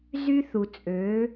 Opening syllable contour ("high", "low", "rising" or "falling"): high